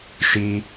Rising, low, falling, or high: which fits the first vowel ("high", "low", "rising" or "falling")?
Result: high